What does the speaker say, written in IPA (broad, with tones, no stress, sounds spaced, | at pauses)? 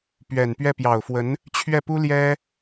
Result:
p ɥ ɛ˨˩ n p ɥ ɛ˥˩ p j ɑ˨˩ ʊ̯ f w ə˧˥ n | t͡ɕʰ ɥ ɛ˥˩ p u˥ l j ɛ˥